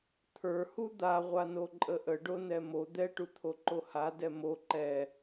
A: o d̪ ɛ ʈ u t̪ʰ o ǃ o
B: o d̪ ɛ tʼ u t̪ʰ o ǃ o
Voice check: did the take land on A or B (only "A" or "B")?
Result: A